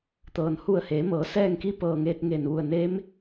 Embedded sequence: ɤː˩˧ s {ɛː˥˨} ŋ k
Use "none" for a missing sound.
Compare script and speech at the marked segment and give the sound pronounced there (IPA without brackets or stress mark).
ɛː˥˨